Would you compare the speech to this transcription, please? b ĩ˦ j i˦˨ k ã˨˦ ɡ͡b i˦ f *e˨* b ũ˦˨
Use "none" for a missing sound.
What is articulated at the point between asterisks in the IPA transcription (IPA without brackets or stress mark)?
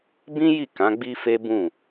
e˦